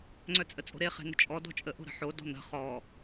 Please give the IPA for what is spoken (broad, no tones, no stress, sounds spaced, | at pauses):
ŋ͡ǀ œ t͡sʼ ə t͡sʼ o̤ ɾ e χ e̤ n̪ ə̤ t͡ʃʼ ɔ d ɔ̤ t͡ʃʼ ə ʔ o̤ ɾ ə̤ ħ o d ɔ̤ n̪ ə̤ χ ɔ